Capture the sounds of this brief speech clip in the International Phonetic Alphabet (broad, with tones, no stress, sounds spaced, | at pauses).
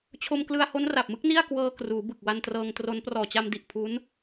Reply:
t͡ɕʰ o˧ m k l ɯ˧ a̯ h o˦˥ n r a˨˩ p̚ m ɯ˦˥ k̚ n i˥˩ a̯ k w ɤː˧ k r uː˩˦ b ɯ˨˩ k̚ w a˧ n t r ɤː˧ ŋ t r o˦˥ n p r ɔː˨˩ t͡ɕ a˧ m d i˨˩ ʔ pʰ u˦˥ n